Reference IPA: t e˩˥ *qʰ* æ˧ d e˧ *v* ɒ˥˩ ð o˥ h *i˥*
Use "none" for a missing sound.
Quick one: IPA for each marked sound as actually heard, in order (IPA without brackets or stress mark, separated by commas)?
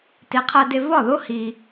qʰ, v, i˩